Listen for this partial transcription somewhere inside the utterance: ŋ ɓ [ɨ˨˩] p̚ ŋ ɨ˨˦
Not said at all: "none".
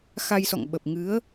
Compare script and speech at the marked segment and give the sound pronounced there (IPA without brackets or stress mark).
ə˨˩